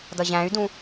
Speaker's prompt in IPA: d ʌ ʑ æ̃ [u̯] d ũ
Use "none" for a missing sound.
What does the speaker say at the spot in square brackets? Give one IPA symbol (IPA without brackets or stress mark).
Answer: y̯